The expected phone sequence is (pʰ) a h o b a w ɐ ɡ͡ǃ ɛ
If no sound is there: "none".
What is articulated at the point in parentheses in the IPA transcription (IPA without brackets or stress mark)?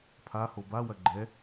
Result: pʰ